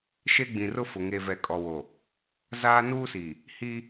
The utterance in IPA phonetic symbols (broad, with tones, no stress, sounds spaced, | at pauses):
ʃ e˦ ɡ͡b ĩ˨ r ʊ˦ f ʊ˨ ŋ e˨ v ɛ˨ kʼ ɔ˨ w o˨ | z aː˦ n uː˦ s i˨ | h i˦